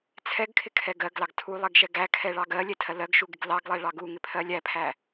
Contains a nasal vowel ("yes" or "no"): no